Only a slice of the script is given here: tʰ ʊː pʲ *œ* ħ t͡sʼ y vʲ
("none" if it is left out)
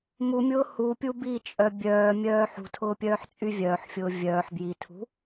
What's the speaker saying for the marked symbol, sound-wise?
œː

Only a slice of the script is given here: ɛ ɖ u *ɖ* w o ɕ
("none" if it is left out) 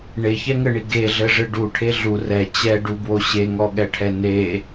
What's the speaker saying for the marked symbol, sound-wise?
b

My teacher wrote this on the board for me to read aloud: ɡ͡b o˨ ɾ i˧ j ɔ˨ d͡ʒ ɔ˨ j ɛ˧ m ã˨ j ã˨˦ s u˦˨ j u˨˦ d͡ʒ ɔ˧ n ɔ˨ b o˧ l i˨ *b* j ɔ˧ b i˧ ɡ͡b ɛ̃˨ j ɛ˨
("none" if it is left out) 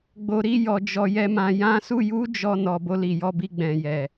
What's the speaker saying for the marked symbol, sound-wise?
none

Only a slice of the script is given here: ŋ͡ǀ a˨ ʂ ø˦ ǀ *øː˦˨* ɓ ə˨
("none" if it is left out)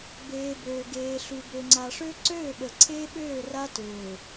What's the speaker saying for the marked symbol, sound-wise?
øː˦˨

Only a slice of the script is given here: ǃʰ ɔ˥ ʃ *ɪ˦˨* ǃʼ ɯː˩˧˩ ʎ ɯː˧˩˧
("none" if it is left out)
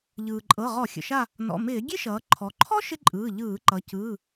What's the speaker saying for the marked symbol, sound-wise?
ɪ˥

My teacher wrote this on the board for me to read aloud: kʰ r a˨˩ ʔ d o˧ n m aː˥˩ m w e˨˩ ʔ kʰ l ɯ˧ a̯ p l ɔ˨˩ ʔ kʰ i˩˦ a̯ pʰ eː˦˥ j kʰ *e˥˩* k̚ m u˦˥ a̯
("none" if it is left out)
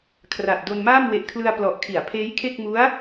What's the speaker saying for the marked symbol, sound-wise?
e˥˩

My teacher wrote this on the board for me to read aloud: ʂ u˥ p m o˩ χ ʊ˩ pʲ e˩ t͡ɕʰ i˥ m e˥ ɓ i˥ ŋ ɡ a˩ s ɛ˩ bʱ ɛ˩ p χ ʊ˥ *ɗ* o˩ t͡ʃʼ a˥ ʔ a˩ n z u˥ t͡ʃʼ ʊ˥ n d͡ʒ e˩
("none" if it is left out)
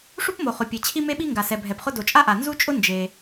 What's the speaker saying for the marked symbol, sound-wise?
d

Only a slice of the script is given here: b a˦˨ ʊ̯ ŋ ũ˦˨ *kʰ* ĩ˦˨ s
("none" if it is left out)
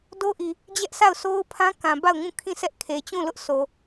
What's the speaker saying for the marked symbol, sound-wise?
kʰ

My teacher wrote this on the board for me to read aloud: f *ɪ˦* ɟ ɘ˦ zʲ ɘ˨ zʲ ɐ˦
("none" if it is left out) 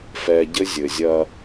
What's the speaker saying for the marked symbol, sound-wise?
ɛ˦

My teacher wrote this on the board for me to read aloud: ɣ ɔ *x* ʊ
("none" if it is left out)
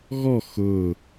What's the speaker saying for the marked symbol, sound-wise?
x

